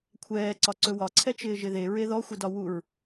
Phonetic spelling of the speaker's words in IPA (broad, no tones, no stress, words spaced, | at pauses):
kʷʰɛːǀɒǀɵ wɒǀʰɛ t͡ʃɪːʒɪðe ɹeðɔxʷɪdɒ wuɹ